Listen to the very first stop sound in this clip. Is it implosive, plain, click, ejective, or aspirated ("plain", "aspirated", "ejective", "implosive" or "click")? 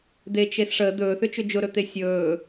plain